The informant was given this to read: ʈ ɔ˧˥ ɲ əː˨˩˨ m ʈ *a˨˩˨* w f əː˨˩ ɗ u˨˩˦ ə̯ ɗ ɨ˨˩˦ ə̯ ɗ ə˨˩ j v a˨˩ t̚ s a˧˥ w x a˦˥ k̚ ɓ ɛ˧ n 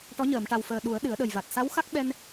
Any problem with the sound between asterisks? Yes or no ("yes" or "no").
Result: yes